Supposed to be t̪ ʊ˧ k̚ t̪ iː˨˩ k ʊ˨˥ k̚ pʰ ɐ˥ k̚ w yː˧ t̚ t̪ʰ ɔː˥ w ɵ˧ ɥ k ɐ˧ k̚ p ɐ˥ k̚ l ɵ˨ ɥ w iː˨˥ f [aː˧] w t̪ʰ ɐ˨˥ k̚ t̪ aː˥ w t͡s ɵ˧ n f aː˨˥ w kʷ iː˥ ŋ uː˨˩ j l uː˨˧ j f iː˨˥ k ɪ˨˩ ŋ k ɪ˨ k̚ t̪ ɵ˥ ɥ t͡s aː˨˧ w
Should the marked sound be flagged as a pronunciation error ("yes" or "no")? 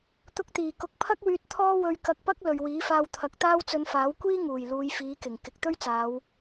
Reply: no